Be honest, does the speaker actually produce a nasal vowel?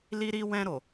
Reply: yes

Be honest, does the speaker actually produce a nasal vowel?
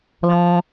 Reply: yes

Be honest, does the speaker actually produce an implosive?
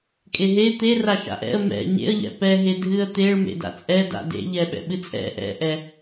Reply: yes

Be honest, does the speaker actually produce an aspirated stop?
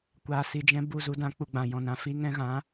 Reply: no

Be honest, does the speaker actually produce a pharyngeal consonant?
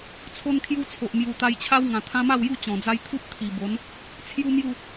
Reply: no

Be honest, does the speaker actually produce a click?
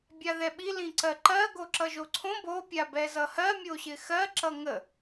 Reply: yes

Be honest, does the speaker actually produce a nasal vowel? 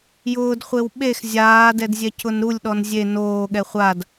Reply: no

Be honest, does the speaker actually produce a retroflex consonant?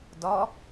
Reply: no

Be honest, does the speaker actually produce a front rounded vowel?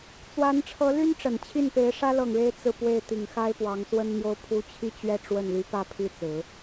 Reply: yes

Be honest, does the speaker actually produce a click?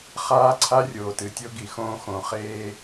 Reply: yes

